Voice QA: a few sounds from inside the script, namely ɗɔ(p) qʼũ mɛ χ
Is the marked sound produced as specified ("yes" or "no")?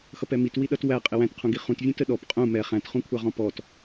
yes